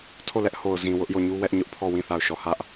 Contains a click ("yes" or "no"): no